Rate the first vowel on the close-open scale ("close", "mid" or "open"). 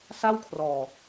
open